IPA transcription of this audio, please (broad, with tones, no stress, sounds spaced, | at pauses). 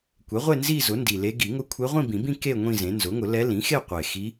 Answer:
kʷ ɛ˩˥ ʁʷ e˥˧ n z i˥˧ z ʊ˩˥ n d i˨˩ l e˧˥ ɡ i˨˩˦ ŋ ʊ˧˥ kʷʰ e˧˥ ʁʷ ĩ˥˧ b ĩ˨˩˦ b ĩ˥˧ k e˥˧ ŋʷ ĩ˥˧ z ẽ˩˥ n z ʊ˩˥ ŋ ʊ˨˩˦ l ɛ˧˥ l ĩ˩˥ x e˥˧ qʷ e˨˩ x i˧˥